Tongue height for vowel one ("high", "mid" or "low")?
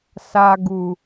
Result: low